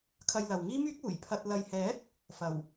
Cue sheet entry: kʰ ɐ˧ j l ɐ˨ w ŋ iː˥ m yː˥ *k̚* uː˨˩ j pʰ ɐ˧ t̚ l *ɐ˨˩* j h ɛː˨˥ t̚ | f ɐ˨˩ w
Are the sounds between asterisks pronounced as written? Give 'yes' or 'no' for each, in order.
yes, no

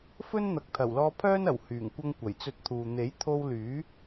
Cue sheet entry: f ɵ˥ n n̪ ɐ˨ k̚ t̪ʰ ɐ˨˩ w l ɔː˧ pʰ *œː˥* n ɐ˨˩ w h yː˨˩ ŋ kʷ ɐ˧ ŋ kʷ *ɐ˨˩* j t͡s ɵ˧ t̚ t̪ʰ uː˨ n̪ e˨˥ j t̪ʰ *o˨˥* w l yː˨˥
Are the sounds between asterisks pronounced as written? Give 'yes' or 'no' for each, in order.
yes, yes, no

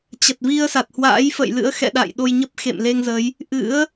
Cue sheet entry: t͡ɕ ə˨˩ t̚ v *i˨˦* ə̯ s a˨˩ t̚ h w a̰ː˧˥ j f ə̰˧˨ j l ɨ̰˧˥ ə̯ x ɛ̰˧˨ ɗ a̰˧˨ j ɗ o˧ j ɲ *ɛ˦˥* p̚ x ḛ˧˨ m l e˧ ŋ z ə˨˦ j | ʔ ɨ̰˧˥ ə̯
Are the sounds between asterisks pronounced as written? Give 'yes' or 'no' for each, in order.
no, no

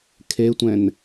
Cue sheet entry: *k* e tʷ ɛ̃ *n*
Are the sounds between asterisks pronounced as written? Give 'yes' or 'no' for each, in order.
no, yes

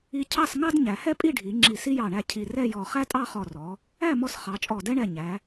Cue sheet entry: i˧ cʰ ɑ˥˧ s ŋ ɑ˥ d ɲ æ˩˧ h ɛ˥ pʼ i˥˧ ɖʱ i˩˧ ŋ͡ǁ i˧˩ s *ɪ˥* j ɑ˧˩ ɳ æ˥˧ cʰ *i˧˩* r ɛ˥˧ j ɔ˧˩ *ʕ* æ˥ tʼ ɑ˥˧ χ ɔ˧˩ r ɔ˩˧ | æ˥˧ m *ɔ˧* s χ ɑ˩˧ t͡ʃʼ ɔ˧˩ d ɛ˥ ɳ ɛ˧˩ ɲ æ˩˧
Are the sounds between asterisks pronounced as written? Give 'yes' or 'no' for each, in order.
no, yes, no, yes

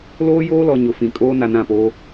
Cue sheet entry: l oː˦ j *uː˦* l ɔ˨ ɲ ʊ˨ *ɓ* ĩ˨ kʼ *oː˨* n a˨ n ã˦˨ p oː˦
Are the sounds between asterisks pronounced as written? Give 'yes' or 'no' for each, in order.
no, no, no

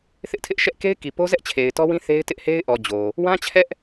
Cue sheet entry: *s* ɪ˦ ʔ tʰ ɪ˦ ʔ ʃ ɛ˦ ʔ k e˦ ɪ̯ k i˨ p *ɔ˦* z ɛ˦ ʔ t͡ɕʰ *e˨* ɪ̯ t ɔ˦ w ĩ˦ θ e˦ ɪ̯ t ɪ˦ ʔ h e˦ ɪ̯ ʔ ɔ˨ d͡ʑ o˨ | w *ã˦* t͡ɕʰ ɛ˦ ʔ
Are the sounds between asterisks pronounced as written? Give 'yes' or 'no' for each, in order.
no, no, yes, yes

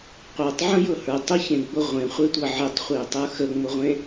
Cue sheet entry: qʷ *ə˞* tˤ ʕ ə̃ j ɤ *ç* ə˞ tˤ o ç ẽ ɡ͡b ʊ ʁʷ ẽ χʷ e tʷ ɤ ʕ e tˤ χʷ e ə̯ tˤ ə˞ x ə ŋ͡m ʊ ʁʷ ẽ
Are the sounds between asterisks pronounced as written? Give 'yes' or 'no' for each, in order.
yes, no

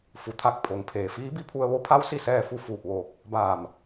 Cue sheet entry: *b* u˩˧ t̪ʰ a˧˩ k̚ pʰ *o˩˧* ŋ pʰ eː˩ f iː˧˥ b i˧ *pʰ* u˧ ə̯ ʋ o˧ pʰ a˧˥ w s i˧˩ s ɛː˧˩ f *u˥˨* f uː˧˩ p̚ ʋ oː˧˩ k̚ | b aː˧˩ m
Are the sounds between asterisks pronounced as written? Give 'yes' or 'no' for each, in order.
no, yes, yes, yes

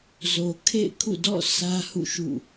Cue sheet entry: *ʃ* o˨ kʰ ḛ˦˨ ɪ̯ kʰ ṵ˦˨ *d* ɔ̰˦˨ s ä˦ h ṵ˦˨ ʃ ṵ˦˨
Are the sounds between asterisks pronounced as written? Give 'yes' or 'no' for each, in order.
no, yes

